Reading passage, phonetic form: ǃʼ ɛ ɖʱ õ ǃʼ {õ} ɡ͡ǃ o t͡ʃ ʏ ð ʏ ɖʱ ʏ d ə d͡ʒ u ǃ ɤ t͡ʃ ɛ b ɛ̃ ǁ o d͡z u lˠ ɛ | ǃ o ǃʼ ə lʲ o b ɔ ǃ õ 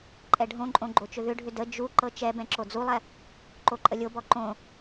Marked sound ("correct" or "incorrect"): correct